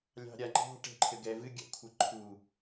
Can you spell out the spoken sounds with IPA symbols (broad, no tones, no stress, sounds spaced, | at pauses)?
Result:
lʲ ɑ̤ ɾʲ a ŋ͡ǃ ɑ̤ ʈ ɛ̤ ǃʰ ɘ ɡ ɛ v ɨ ɡʲ a̰ kʷʰ ɘ ǃʰ u